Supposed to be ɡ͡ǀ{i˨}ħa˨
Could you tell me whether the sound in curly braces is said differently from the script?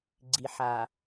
no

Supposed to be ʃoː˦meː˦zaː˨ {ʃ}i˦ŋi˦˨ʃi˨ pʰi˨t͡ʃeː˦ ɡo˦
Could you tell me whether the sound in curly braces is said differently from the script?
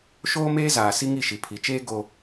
yes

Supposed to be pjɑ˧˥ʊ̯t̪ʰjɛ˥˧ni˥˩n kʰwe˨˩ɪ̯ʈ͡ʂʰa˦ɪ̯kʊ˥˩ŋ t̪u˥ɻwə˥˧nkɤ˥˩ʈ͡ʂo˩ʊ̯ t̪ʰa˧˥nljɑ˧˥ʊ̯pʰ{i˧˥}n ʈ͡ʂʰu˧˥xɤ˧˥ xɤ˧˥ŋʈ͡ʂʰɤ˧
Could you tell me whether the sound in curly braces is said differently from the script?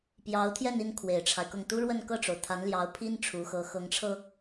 yes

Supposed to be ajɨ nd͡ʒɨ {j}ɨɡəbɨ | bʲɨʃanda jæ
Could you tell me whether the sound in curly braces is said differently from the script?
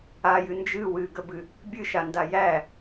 yes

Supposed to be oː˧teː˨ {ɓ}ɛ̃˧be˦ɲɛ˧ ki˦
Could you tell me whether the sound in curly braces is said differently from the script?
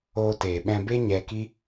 no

